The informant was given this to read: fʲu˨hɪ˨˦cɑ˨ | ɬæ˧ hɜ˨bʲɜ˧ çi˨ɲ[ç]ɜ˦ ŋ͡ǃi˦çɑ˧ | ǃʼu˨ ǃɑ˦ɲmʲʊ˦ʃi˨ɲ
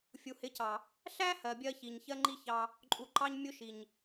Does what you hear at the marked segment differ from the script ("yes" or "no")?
no